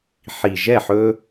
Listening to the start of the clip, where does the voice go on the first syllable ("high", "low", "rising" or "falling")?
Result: low